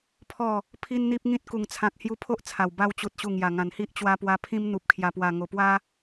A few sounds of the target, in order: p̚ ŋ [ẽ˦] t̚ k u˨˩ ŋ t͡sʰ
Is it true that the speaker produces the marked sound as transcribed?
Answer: no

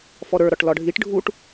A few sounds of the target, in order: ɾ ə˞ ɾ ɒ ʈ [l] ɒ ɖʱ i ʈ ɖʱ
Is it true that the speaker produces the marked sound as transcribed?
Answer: yes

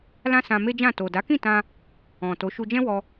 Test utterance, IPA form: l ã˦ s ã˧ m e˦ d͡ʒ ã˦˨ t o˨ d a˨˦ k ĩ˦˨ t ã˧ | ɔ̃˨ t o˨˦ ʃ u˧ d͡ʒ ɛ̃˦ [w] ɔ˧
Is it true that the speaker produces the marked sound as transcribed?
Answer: yes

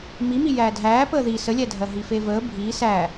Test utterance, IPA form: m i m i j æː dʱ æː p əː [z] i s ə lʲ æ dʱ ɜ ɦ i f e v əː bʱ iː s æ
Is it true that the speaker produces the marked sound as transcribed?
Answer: no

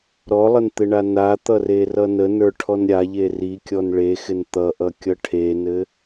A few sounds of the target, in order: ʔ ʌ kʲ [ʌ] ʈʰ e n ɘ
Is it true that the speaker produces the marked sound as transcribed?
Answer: yes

